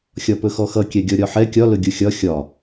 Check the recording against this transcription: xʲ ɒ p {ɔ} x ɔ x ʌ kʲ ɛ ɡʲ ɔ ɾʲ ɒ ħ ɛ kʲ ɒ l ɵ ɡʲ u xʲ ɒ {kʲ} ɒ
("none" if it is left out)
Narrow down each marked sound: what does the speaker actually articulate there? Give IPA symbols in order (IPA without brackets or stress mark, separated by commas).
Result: ɵ, xʲ